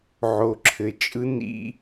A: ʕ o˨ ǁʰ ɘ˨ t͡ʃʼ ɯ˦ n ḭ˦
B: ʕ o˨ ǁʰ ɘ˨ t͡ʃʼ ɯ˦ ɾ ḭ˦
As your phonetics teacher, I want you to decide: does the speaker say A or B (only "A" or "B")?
A